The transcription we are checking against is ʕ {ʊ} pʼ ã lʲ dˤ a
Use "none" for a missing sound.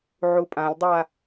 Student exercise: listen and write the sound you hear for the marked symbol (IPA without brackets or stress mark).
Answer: u